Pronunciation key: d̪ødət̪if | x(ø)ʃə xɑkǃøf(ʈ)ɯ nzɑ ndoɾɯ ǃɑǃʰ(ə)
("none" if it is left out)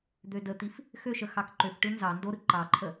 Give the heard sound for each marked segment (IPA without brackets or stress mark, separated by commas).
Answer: ø, ʈ, ə